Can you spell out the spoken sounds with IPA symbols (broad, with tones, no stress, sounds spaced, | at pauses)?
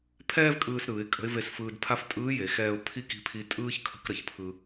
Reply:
pʰ ɛː˥ v kʼ ɯː˧ s ɾ ɯː˩˧ ɪ̯ kʼ ə̤˧˥ ɪ̯ v e˧ s f ɯː˧ d pʰ a˥ f tʼ ɯː˧˥ j e˩˧ x ɛː˧ ʊ̯ pʰ i˥ k i̤˧˥ pʰ i˧˥ tʼ ɯː˥ ç kʰ ə̤˧˥ k ɾ ə˩ ç pʰ ɯ˧